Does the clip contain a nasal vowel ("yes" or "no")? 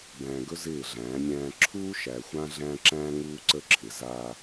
yes